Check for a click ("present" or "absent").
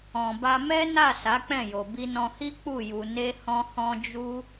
absent